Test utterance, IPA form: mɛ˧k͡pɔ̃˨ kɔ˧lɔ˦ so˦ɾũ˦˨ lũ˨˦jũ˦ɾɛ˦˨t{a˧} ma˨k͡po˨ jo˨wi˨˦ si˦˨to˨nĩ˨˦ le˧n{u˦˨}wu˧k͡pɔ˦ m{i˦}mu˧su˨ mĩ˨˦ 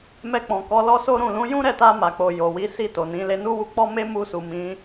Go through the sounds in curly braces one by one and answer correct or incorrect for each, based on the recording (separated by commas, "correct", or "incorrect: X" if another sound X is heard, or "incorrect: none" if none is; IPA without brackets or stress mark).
correct, incorrect: u˦, incorrect: e˦